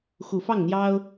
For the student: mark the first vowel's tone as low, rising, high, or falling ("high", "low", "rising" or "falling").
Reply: low